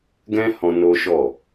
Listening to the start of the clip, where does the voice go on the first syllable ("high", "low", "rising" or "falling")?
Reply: high